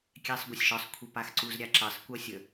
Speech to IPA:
kʲ æ sˤ ɡʷ a sʲ ʃ ɒ sˤ kʷʰ e p a x ǀ u z ɾʲ a ǁ ɜ sˤ kʷ ɜ sʲ ə

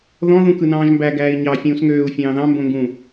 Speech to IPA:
ð ɔ̃ ð ũ k ɯ n ɑ̃ː ʒ m b æ ɡ æː i̯ ɲ ɑ fʲ ũː s ŋ øː u̯ fʲ ɑ̃ː ð ɑ̃ m b õ ŋ ɡ ũ

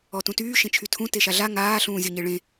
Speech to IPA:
ɔ t ũ t yː ʃ ẽ t͡ʃʰ y tʰ ũ t e ʃ a ɮ a ŋ aː ɬ ũː zʲ ɔ ɲ e ɭ ẽ

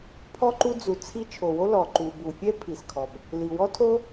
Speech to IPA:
pʰ ɔ˥ ǃ u˥ d͡z u˩ t͡sʰ i˥ t͡ʃʰ o˩ w o˥ l ɔ˩ ǃ u˩ b u˩ fʲ ɛ˥ pʰ i˩ s kʰ ɔ˩ b | l i˩ w ɔ˥ tʰ o˥

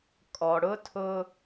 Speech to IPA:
kʼ ɔ˨ ɽ ʊ˦ tʰ ʊ˦

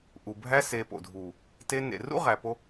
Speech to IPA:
ʔ u˨ bʱ æ˦ s e˧ p o̰˨ dʱ uː˨ | t e˦ n ḛ˨ r ṵ˦ ʁ æ˧ p o˦

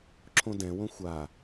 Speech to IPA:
ǁʰ õ d ɛ̃ w õ xʷ a

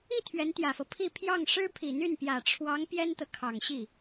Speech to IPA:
i˥˩ t̪ʰ ɥ ɛ˧˥ n t̪ j ä˨˩ f ɤ˦ pʰ i˥˧ pʰ j ɑ˥˩ ŋ ʂ ɻ̩˥ pʰ i˨˩ n̪ y˥˩ n p j ä˨˩ ʈ͡ʂʰ w ɑ˧˥ ŋ p j ɛ˥ n t̪ ɤ˨ kʰ ɑ˨˩ ŋ ɕ i˥˩

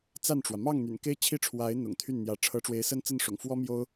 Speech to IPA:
t͡s a˥˩ n ʈ͡ʂ w ä˩ m ɑ˥˩ ŋ n̪ y̰˨˩ n k e˥ ɪ̯ t͡ɕʰ i˥˩ ʈ͡ʂʰ w a˧˥ ɪ̯ n̪ ʊ̰˨˩ ŋ t̪ʰ y˥˩ n n̪ j ä˧˥ ʈ͡ʂʰ ɤ˧˥ ʈ͡ʂ w e˧˥ ɪ̯ s ə˥ n t͡s ə˥˩ n ʂ ʊ̰˨˩ ŋ f w ɔ˥ m j o˥ ʊ̯

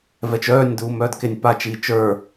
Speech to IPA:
v ɛ t͡ʃ œː nʲ d uː m œː d k e nʲ p a t͡ʃ iː t͡ʃ ə˞

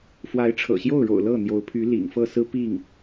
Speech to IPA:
f w a˧˥ ɪ̯ ʈ͡ʂʰ ɤ̰˨˩ ɕ j o˥˩ ʊ̯ ɻ o̰˨˩ ʊ̯ l ɤ˥˩ n̪ j o˧˥ ʊ̯ pʰ y˧˥ l ḭ˨˩ ŋ f ɤ˥˩ s ɹ̩˥ p i˥˩ ŋ

